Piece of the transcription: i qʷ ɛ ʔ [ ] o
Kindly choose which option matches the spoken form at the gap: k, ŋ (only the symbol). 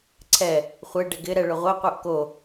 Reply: k